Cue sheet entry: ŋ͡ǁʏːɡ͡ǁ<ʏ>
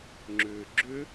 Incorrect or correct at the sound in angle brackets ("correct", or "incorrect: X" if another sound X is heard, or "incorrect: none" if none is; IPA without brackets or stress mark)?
correct